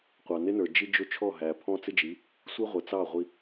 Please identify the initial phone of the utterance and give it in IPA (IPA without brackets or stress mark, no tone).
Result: qʷ